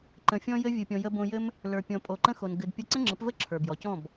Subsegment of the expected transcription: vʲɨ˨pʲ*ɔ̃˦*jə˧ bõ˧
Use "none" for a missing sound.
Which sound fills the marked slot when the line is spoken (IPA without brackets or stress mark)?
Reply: ɔ̃˨